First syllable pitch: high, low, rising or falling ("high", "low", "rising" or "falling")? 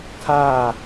falling